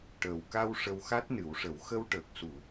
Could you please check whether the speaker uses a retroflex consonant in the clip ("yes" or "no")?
yes